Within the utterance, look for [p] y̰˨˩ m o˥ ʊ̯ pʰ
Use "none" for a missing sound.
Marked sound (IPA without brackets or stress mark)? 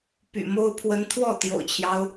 p